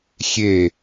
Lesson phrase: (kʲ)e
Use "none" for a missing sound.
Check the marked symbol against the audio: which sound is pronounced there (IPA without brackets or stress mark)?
xʲ